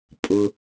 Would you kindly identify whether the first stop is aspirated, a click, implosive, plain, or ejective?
ejective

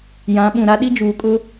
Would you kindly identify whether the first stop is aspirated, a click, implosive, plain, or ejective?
implosive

